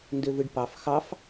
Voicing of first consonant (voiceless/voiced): voiced